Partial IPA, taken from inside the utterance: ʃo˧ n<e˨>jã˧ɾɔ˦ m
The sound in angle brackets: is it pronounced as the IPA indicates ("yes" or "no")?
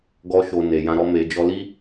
yes